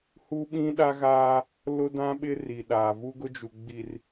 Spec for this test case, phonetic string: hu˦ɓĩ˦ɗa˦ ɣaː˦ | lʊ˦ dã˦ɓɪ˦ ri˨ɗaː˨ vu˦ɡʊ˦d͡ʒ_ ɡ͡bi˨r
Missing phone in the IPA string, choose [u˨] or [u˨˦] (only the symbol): u˨